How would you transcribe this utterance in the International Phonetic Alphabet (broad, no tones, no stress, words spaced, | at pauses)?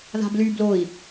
ða̤bly bloi̯